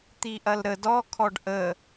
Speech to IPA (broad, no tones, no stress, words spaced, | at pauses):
t̪iʔɐlɾə dɔ kʰɔɖʔə